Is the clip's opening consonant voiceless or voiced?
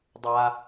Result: voiced